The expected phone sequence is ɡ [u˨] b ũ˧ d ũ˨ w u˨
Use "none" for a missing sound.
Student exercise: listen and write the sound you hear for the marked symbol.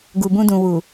u˨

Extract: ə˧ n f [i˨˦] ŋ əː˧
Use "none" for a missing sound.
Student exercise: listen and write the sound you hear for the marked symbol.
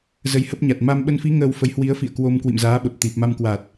i˨˦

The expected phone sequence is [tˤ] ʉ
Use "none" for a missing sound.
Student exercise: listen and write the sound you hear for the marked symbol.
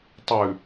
tˤ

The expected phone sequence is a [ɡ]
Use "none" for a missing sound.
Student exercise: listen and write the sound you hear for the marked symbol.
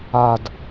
d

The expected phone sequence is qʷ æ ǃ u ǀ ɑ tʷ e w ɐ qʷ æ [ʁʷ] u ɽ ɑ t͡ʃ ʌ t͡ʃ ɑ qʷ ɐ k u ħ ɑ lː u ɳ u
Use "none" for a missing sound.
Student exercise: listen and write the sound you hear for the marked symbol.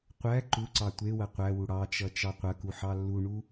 w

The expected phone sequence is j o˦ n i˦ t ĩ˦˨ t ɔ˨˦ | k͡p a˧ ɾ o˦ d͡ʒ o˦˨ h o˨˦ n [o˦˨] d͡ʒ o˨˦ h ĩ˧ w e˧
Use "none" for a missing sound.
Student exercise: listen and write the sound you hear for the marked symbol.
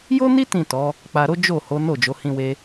o˦˨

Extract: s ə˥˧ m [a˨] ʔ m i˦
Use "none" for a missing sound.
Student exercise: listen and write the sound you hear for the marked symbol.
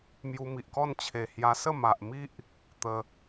a˨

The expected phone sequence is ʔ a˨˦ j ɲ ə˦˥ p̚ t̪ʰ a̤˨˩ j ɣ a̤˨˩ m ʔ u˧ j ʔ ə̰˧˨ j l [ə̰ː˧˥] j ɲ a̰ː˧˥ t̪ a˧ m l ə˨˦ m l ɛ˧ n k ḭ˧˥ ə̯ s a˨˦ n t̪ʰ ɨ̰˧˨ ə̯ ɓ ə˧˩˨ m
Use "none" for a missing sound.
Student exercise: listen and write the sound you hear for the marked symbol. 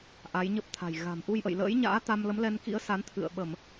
ə̰ː˧˥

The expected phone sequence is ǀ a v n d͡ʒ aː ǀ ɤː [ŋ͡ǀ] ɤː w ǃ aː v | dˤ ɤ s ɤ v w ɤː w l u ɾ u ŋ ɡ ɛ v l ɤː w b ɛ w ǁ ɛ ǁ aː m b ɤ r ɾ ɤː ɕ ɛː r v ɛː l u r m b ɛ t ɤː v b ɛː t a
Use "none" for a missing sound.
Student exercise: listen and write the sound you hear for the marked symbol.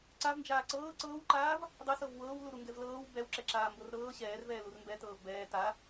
ǀ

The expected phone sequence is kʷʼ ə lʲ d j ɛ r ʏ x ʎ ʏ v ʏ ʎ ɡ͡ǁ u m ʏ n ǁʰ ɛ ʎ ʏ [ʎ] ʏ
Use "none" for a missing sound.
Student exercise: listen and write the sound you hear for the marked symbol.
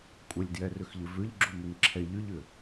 ʎ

